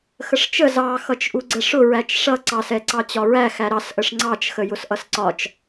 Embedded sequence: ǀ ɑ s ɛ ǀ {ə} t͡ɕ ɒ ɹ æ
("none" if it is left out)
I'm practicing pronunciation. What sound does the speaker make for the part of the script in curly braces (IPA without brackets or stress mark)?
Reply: ɑ